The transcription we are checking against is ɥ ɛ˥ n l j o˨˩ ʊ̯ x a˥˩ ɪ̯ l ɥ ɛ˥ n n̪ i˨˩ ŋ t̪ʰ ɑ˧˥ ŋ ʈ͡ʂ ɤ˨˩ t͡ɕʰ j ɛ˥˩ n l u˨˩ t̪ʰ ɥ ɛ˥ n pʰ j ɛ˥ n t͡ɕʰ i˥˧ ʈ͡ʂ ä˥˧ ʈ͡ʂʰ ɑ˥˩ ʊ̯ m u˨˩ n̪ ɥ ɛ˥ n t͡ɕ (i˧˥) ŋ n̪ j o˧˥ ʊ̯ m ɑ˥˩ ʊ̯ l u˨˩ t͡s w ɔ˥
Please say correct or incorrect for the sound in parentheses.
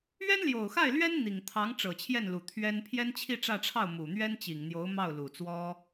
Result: incorrect